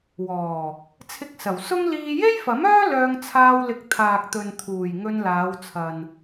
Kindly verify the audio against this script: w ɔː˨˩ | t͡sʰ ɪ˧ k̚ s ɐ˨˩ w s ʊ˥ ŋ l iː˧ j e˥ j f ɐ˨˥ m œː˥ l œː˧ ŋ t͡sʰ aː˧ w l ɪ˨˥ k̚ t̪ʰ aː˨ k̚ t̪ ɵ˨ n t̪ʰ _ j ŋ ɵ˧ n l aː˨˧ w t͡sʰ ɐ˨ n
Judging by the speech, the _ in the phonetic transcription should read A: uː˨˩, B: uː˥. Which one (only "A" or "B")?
A